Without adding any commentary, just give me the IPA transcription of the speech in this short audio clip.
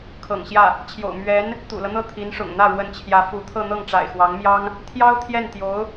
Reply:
kʰ ɤ̰˨˩ ŋ ɕ j ä˥˩ | t͡ɕʰ j o̰˨˩ ʊ̯ m ɥ ɛ˧˥ n | t̪ ṵ˨˩ l ɤ˦ n̪ ɤ˥˩ t̪ʰ i˧˥ n ʂ ʊ̰˨˩ ŋ n̪ ä˥˩ ɻ w ə˧˥ n t͡ɕʰ j ä˧˥ f u˧˥ t̪ʰ ɤ˥˧ n̪ ɤ˥˩ ŋ ʈ͡ʂ a̰˨˩ ɪ̯ x w ɑ˧˥ ŋ m j ɑ˥ ŋ | t̪ʰ j ɑ˥ ʊ̯ t̪ʰ j ɛ˥˩ n t̪ j o˧˥ ʊ̯

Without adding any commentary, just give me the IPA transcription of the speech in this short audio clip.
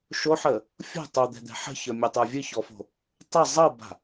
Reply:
ʃ o ħ ə | fʲ o̤ tˤ o d̪ ɛ̤ d̪ ɛ̤ ħ ə̤ ç ə˞ mʲ ɛ tˤ ə˞ vʲ ɨ ç ɔ f o̤ | tˤ ə zˤ ɤ b a̤

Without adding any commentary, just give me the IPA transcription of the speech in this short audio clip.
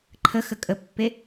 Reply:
ǃʰ ə x ə kʼ ə pː e

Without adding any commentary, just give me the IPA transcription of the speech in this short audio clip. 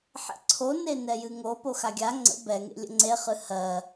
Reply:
ħ ḛ ǀʰ o n e n ɛ j ɨ ŋ o p o x a ɡʲ a ŋ͡ǀ ə̰ b ɛ ŋ ḛ lʲ ə̰ ŋ͡ǀ e χ ɨ h ɜ

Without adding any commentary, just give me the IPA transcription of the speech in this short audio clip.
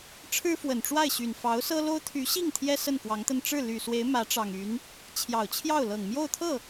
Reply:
ʈ͡ʂʰ ɻ̩˥ f w ə˨˩ n ʈ͡ʂ w a˥˩ ɪ̯ ɕ y˨˩ n f ɑ˧˥ ʊ̯ s ɤ˥ l o˥ ʊ̯ t̪ʰ y˧˥ ɕ i˥˩ ŋ t̪ʰ j ɛ˥ s ə˥˩ n k w ɑ˧˥ ŋ t̪ ə˥˧ n ʈ͡ʂ ɻ̩˥˩ l y˨˩ s w e˧˥ ɪ̯ m ä˧˥ ʈ͡ʂ ɑ˨˩ ŋ y˧˥ n | t͡ɕʰ j ɑ˨˩ ʊ̯ t͡ɕʰ j ɑ˥˩ ʊ̯ l ɤ˨˩ ŋ m j o˥˧ ʊ̯ t̪ʰ ɤ˥˩

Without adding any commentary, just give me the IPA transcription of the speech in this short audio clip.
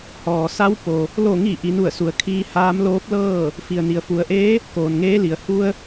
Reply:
h ɔː˩ s a˧˥ w p o˩ | l o˧˩ ŋ i˧˩ ʔ i˩˧ n u˧˩ ə̯ s u˩˧ ə̯ kʰ iː˧ h aː˧˥ m l oː˧˥ p̚ l ɤː˥˨ | f i˩ ə̯ n i˩ ə̯ f u˩˧ ə̯ ʔ eː˧˥ | k oː˩ n ŋ eː˧˥ l i˩ ə̯ h u˧ ə̯

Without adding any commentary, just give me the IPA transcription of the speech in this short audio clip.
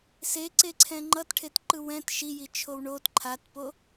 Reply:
s e ǀ e ǀʰ ɛ̃ ŋ͡ǃ ʌ t ʈʰ e t ǃ ɯ w ɛ̃ t ʃ i j i t͡ʃʰ o w ɳ o t ǃʰ a t p o

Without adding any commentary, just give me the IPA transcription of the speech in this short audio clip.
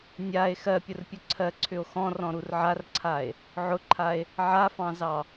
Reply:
nʲ a e̯ x ɜ pʲ ʊ r pʲ ʊ ǀʰ ɜ ǀʰ ʏ o̯ x ɔ̃ r ɔ̃ ɾ u r ʕ a r ǀʰ a e̯ | ʕ ʊ ǃʰ a e̯ | ʕ a f ɑ̃ z ɑ

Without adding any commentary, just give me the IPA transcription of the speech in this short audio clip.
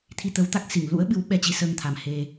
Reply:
t̪ʰ i˧ t̪ ə˨˦ w t̪ a˦˥ k̚ s i˧˩ ŋ l ṵ˧˥ ə̯ ɓ ɨ˨˦ w ɓ ɛ˧ t͡ɕ i˨˦ s əː˧ ŋ t̪ʰ a˨˩ m h e˧

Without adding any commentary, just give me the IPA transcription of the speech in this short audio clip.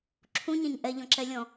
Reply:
ǁʰ ũ ɲ ɛ̃ ɲ ʔ ɛ ʎ ɔ̃ ǁ ɛ lʲ ɔ̃

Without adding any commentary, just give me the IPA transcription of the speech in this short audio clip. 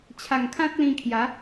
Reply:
t͡ɕʰ a˨˩ ŋ kʰ ã˦ t̚ l ĩ˧ kʰ j a˨˦

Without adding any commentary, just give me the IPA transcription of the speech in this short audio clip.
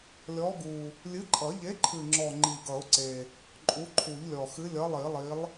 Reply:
lʲ ɔ˨˥ ɡ u˨˩ | lʲ ɨ˨˥ ǃʼ ʌ˨˩˦ ʎ e˨˥ ǃʰ ɨ˨˩ ŋ͡ǁ ɔ˨˩ ŋ͡ǃ i˨˩ ɡ ʌ˨˩˦ ʊ̯ ǀ e˨˩ | ǃʼ u˨˥ ǃʰ u˨˩˦ ʎ lʲ ɔ˨˩ x ɨ˨˥ lʲ ʌ˨˥ lˠ i˨˩˦ lˠ i˨˥ lˠ

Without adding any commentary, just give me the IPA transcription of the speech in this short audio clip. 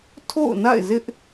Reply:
tʰ o̰˦˨ ʊ̯ n a̰˦˨ ɪ̯ z ɪ˦ ʔ

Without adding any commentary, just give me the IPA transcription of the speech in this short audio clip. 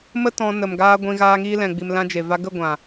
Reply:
m ə˦ t ɔ̃˧ n ə˨ m ɡ aː˧ ɡʷ ĩ˧ ɣ aː˧ ŋ iː˧ l ɛ̃˨ ɡ͡b i˨ m l ã˧ d͡ʒ e˨ v a˧ ɡ ə˦˨ ɡʷ ã˨

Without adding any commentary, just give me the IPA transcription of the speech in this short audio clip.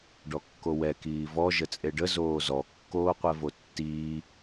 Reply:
ɖ ɔ kː o w ɛ k iː v ɔ ʒ ə t͡sʼ e ɖ ə z oː z ɔ kː oː qʷ ɛ v o tː iː

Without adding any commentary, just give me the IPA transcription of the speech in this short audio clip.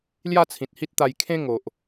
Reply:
l j a˥˧ t͡sʰ ĩ˨ t̚ h i˦ t̚ t̪ a˧ j kʰ ẽ˦ ŋ o˨ ʔ

